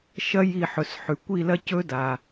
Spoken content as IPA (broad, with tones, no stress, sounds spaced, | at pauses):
ʃ ɐ˦˥ j i˦˨ ħ ɵ˩˧˩ s ħ ʉ˩ kʷ i˦˨ l ɐ˦˥ c ɵ˦˥ d a˩